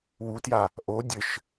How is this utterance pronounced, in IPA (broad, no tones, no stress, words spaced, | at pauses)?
wutja | ʔo dʲɘʃ